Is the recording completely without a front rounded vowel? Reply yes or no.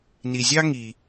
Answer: yes